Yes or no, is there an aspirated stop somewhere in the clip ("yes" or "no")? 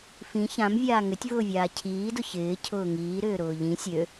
yes